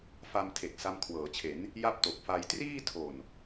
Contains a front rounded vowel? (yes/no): no